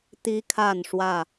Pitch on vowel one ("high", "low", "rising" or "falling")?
high